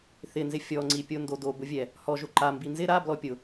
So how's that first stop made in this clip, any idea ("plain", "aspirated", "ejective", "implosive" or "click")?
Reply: click